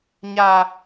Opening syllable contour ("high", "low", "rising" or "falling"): high